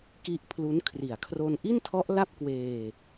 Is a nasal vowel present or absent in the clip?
absent